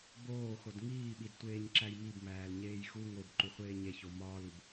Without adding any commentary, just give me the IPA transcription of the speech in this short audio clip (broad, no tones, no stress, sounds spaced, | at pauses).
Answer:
b oː x o d ŋ iː ɓ i d tʷ eː ɲ ǁ æ j m i b m æː l ɲ eː j x u ŋ o b ǃ u χʷ eː ɲ e ç o m ɒː l u b